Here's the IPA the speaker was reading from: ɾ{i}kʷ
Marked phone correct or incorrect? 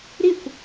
correct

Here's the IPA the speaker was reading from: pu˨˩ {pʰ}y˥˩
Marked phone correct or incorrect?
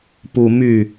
incorrect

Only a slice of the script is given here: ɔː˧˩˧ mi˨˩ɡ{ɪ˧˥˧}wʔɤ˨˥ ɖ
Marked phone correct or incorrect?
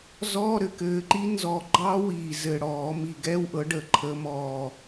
incorrect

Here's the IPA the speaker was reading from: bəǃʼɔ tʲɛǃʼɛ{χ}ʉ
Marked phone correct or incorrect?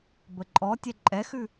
incorrect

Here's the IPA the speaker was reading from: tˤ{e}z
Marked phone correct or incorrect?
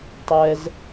incorrect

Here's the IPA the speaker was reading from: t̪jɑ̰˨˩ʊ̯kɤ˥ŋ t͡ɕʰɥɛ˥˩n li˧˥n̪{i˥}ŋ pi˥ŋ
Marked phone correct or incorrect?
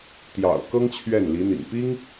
incorrect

